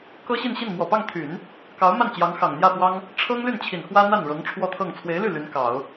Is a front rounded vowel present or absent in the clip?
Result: present